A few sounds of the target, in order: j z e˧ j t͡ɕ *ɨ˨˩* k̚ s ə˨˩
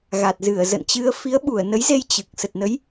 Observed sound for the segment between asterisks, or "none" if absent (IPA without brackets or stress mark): ɨ˨˩